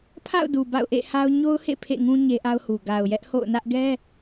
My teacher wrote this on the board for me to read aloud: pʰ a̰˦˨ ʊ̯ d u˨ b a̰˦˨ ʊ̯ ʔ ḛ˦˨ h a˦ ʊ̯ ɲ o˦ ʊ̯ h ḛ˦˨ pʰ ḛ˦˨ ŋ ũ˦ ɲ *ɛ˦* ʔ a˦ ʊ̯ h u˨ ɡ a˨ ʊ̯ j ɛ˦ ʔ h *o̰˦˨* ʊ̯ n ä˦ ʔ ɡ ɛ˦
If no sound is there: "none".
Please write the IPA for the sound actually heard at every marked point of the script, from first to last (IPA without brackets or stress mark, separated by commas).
e˦, o̰˦˨